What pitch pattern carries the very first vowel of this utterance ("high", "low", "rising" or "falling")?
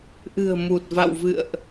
low